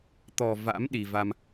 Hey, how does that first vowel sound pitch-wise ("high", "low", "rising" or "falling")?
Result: low